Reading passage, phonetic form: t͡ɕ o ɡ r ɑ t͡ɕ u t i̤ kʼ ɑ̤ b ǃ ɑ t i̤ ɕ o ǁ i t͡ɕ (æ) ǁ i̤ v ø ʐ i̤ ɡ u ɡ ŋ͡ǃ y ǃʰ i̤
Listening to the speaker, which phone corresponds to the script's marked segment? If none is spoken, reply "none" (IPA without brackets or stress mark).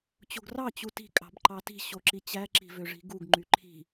æ